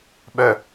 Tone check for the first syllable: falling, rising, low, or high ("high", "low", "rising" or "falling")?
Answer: low